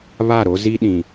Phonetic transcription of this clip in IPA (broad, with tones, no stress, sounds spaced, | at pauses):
β a˦˨ ɾ o˦ z i˦ ɗ ĩ˨